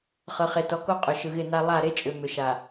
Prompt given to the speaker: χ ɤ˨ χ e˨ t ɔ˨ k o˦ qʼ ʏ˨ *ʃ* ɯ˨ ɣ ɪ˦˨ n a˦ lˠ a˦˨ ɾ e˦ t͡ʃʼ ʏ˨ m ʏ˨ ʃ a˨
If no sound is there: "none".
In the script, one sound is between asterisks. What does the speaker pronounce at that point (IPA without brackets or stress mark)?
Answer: ʃ